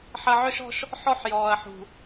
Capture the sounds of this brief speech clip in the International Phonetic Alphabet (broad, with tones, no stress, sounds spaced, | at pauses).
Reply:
ħ ɐ˨ ʕ œ˦ ʃ ɔ̤˦ ʃ | ħ ɔ˦ ħ j ɔː˨ ɐ̯ ħ ṳ˨